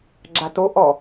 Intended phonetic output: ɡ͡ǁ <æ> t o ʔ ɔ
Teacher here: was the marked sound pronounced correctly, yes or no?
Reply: no